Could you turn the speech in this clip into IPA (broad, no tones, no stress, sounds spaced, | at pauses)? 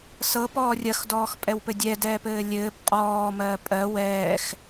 s ɤ p ɔː rʲ ɐ x d ɔː x pʼ ɛ w p ɘ dʲ ɛ d ɛː p ɘː lʲ ɘː b qʼ ɔː m ɜ pʼ ɜ w ɛː x